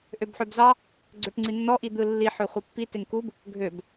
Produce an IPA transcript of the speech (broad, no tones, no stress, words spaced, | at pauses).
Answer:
ʔøbħøbzɑ | ɡ͡ǀøʈŋ͡ǀinːɔ ʔid̪ɯlːi ħøχʷepːi teŋkub | ɡʱøb